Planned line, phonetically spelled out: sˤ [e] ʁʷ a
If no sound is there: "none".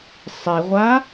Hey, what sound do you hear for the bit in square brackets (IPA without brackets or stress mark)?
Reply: i